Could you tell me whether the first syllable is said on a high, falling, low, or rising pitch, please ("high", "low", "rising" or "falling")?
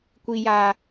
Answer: low